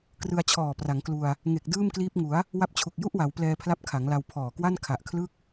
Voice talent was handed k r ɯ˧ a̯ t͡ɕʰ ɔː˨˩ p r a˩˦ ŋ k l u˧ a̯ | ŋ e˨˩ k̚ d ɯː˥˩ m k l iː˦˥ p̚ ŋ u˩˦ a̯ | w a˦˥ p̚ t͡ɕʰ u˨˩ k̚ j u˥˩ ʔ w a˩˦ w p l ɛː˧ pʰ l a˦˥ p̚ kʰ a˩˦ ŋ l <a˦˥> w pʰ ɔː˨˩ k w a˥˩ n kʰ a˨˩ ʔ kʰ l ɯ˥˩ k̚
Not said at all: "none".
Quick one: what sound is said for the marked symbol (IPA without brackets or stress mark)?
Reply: a˧